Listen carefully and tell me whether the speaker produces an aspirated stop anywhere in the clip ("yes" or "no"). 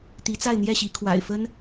yes